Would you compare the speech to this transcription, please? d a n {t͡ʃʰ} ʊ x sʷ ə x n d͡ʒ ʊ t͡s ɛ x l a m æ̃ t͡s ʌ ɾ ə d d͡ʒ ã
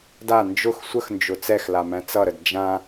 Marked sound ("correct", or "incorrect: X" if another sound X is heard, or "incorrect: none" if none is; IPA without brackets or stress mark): incorrect: d͡ʒ